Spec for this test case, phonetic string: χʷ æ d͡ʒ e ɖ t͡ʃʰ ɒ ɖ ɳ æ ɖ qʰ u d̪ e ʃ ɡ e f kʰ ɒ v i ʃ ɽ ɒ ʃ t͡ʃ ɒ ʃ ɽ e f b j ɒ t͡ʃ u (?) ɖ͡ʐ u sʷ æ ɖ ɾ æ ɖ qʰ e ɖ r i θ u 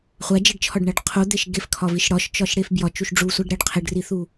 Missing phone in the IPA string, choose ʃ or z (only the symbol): ʃ